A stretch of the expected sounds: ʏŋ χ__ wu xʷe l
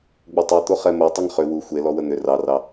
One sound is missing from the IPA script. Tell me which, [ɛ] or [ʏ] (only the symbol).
ʏ